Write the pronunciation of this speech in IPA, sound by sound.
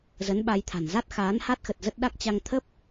z ə˨˦ n ɓ a˧ j t̪ʰ a̤˨˩ n z a˦˥ t̚ x aː˨˦ n h a˦˥ t̚ x ə˨˩ t̚ z ə˦˥ t̚ ɗ a˦˥ k̚ t͡ɕ a˧ ŋ t̪ʰ ə˦˥ p̚

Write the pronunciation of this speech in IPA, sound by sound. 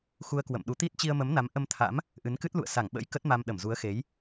x u˧ ə̯ k w ə̰˧˨ m ɗ u˨˦ t̪ i˦˥ t̚ t͡ɕ i˧ ə̯ m ə˨˦ m n a˨˦ m ʔ ə˧ m t̪ʰ a̰˧˥ m | ʔ ɨ˨˦ n k ɨ˦˥ t̚ l ṵ˧˨ ə̯ s a˧˩ ŋ ɓ ə̰˧˥ j k ə˦˥ t̚ m a˧ m ɗ ə˧˩ m z u˨˦ ə̯ x e˨˦ j

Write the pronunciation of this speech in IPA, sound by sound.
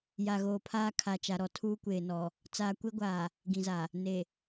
j a˨ ɣ oː˨ pʰ aː˦ kʰ a˨ t͡ʃ a˨ ɾ ɔ˨ tʰ uː˦ kʷ eː˨ n ɔ˨ | t͡s aː˨ kʷ e˦ ɡʷ aː˨ | ɡ ĩ˨ z a˨ | n e˨

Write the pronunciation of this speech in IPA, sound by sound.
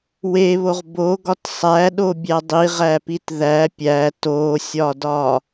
w e β o ʁ b o ɡ ɒ t sˤ æ ɗ o bʲ æ dˤ i ʁ æ p i t ð æ pʲ æ t o sʲ ɒ d ɒ

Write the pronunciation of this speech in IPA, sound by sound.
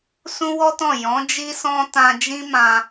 s ũ˦ w ɔ˦ t ɔ̃˦˨ j ɔ̃˨˦ d͡ʒ i˧ s ɔ̃˧ t ã˧ d͡ʒ ĩ˦ m ã˧

